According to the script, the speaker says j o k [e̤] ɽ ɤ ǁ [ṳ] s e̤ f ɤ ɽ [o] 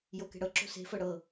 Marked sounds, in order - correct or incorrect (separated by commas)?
correct, incorrect, incorrect